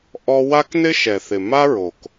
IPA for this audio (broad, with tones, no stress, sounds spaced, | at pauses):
ʔ ɔ˧ w a˦ k n ɪ˦ ʃ ɛ˨ θ ɪ˨ m a˦ ɹ o˨ k